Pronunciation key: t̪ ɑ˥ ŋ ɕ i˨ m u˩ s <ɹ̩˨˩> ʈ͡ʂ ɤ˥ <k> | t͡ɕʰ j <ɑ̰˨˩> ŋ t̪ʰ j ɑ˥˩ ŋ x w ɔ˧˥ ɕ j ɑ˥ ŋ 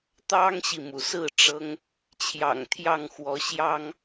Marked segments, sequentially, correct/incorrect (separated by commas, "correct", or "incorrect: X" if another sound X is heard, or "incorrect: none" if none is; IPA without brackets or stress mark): incorrect: ɹ̩˥˩, incorrect: ŋ, correct